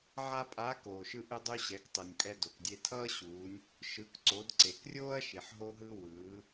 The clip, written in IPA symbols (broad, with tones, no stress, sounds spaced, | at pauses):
ʕ a˥ pʼ a˧˥ k oː˩ ʃ ɯ˧ ʔ ɯ˧ dˤ u˧ ɕ ɛ˩˧ k tˤ ɯ˩ nʲ pʼ ɛ˧ d o˩ k dʲ e˧ tʰ ʌː˥ ɕ uː˩˧ nʲ | ʃ ɯ˩˧ k ǀ o˩˧ d ǀ e˩ k rʲ oː˥ ɐ̯ ʃ i˩ ħ ɦ o˧ ɦ ɯ˧ w ɯː˩˧